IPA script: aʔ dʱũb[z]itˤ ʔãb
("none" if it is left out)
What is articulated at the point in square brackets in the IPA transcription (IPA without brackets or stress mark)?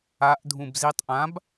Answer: z